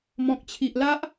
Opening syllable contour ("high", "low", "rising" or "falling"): low